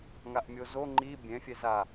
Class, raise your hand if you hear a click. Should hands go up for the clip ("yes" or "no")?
yes